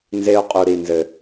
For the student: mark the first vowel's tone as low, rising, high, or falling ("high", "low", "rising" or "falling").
high